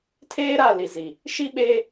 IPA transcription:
tʰeː˦ɾa˦˨ li˨zi˨ | ʃi˦ɓeː˦

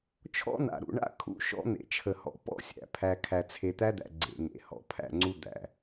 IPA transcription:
t͡ʃʰɔ̰˦na̰˨ɾṵ˨ɳa̰˦ kʰṵ˦ʃɔ̰˦ n̪ḛ˨t͡ʃʰə˨hɔ̰˨ pɔ̰˦sʲæ̰˨ pʰæ˨ kʰæ˨t͡sʰe˨t̪æ˦d̪æ̰˨ ɡ͡ǀḛ˨ŋḛ˨˦ hɔ̰˨pʰæ̰˦˨ŋ͡ǀu˦ d̪æ̰˨

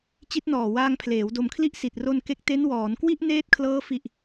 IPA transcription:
t͡ɕi˦˥t̚nɔː˨˩waː˧ŋpʰleː˩˦w do˨˩mkʰli˦˥ʔ si˨˩t̚ro˧nke˦˥k̚ te˦˥nwɔː˩˦nkwi˥˩ʔ neː˦˥t̚kʰlɤː˦˥fi˨˩ʔ

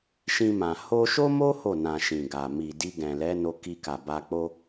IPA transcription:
ʃĩ˧mã˨ ho˧ʃo˦mo˦ ho˦˨nã˨ ʃĩ˨ɡa˨ mi˨di˧ɡɛ̃˨lɛ˨˦ no˧ki˧ka˨ ba˧k͡po˦

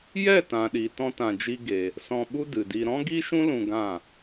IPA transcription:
jɛ˦˨tã˨ɗi˨ tɔ̃˦tã˧d͡ʒi˦ɡe˧ | sɔ̃˧ɓu˦dɨ˨di˧ ɾɔ̃˦ɡi˦ʃũ˦ lũ˧ɡã˦˨

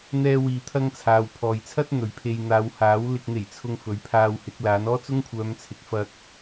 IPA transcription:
n̪ɛː˥wiː˧ t̪ʰɐ˥ŋt͡sʰaː˨˧w pʰɔː˨jt͡sʰɐ˥t̚ n̪ɵ˨ɥpʰe˧j n̪aː˨˧whaː˨˥w lɪ˨k̚n̪e˨˩jt͡sʰʊ˨ŋ fɵ˨˥ɥpʰaː˧whɪ˨˥k̚ laː˨˥n ɔː˥t͡sʊ˥ŋkʷʰœː˨˧mt͡sʰɪ˨˥k̚ fɐ˥k̚

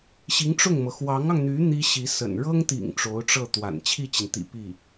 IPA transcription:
ɕi˧˥ŋʈ͡ʂʊ˥˩ŋmɤ˩ xwɑ˧˥ŋɑ˧ŋn̪y˧˥ n̪i˥ɕi˧˥sə̰˨˩n ɻɤ˥ŋt̪ḭ˨˩ŋ ʈ͡ʂo˧˥ʊ̯ʈ͡ʂɤ˥˩t̪wa̰˨˩n t͡ɕʰi˥˩t͡ɕi˩nt̪ḭ˨˩ pi˥˩

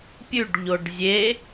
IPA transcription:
pʲʉɖʎoɖ zʲe

